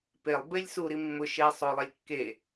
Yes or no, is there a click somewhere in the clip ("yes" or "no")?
no